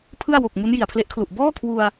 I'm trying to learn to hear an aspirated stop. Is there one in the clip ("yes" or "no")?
yes